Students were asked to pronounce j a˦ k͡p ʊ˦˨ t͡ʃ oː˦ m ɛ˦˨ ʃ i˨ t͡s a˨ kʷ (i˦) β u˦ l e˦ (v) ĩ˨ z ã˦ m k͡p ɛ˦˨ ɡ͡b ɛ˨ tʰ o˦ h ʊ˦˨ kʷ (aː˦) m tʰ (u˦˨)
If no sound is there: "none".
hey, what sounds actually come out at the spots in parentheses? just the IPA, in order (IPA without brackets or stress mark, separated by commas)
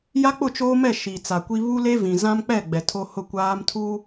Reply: i˦, v, aː˦, u˦